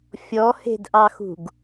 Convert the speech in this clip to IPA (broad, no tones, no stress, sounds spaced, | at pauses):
fʲ ɔ h e̤ d ʔ ɑ x ṳ ɡ